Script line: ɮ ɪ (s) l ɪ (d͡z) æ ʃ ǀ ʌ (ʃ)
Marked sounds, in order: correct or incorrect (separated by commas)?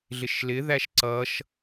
incorrect, incorrect, correct